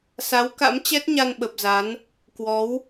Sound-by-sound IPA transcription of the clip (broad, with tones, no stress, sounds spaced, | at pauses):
s a˨˦ w k a̰˧˥ m t͡ɕ ɛ˦˥ t̚ ɲ a˧ n ɓ ə˨˩ p̚ z a˨˦ n | k w ɔ˨˦ w